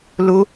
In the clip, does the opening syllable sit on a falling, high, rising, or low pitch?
high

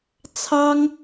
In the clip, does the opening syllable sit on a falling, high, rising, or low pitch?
high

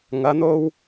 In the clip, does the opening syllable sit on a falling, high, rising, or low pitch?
rising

